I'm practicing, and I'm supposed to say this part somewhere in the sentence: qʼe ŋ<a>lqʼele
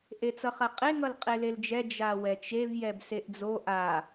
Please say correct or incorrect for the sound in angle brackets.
incorrect